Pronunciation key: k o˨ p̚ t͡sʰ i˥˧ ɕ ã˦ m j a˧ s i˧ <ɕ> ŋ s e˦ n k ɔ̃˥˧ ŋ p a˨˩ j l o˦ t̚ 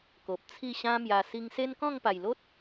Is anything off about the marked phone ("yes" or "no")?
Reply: yes